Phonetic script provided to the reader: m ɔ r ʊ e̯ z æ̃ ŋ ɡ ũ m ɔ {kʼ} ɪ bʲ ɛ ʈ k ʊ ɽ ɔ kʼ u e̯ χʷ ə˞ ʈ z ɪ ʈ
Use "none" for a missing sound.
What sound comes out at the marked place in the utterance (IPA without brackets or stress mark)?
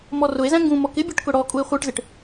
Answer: k